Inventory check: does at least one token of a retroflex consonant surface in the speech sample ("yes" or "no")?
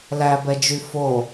no